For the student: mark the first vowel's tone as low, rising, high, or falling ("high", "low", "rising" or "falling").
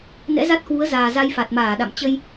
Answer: rising